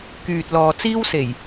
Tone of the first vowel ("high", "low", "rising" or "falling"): low